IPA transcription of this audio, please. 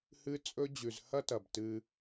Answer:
hɨ˦t͡sʼɵ˦ d͡ʑʉ˨zhɐ˦ tɐ˨btɨ˧

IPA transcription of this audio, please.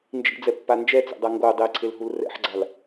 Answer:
nd͡ʒḭd͡zɛpːa nd͡ʒɛt͡sḛdˤa ŋɡo dˤeǀʰelɦul rɛ̰ħɡ͡ǀal

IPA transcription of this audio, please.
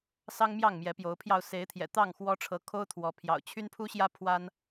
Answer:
sɑ˦ŋ mjɑ˥˨ŋmjɛ˨˦pjo˨˦ʊ̯pʰjɑ˧ʊ̯ se˨˦ɪ̯t̪ʰjɛ̰˨˩ t̪ɑ˥˨ŋxwɔ˦ʈ͡ʂʰɤ˨˦ kʰo˦ʊ̯t̪ʰwɔ˨˦pʰjɑ̰˨˩ʊ̯ t͡ɕʰy˦npʰu˦ɕjä˦ pʰwa˦n

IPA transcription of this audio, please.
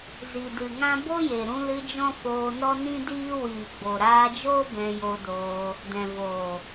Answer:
zi˨dɨ˨ ŋã˦ bo˦je˨ɾũ˧lɨ˧ d͡ʒɔ̃˦foː˧nɔ˦ nĩ˦diː˦ wiː˨ɡ͡bo˨ɾaː˧d͡ʒoː˦ bɛ̃˧jo˧doː˧ | dɛ̃˨voː˨

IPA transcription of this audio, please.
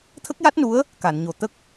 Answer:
t̪ʰə˦˥k̚ja˦˥t̚nu˧˥ə̯ | ka˨˩˨nɲo˨˩ t̪ə˦˥k̚

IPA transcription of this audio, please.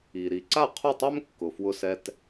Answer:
i˩ ɾi˩ǀa˥˩qʰu˥˩tˤɛ˥m kːʊ˩fwʊ˧sɛ˧t

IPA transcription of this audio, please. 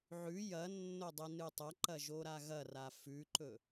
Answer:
ʕʉ jɐnːo dˤinɨtˤɐǃɐ ʒoɾaɣɐra fʉǃɵ

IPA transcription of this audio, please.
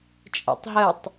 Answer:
t͡ʃʼɛ̰tˤɦətˤ

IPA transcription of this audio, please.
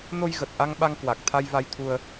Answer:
no˧jɣə˨˩t̚ʔa˧ŋ ɓa˧ŋkwa˨˩k̚t̪ʰa˧j va˧jt̪ʰu˧ə̯

